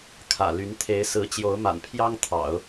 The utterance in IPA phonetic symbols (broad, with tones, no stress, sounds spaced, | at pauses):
kʰ ä̰˨˩ l y˧˥ n t̪ʰ e˧˥ ɪ̯ s ɹ̩˧˥ t͡ɕ j o˧˥ ʊ̯ m a̰˨˩ n pʰ j ɑ˥ ŋ t̪ʰ ɑ̰˨˩˦ ʊ̯